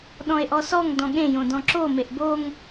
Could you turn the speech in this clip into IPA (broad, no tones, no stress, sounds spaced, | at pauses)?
ɗ ɔ̃ e̯ ʔ ɔ s ɔ ŋ d ɔ̃ ɠ ẽ j õ d ɔ̃ ǁ o m e ʔ b o ŋ